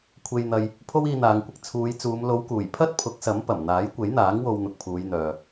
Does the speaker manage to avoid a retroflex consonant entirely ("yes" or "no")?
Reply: yes